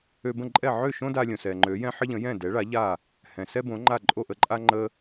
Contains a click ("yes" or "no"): yes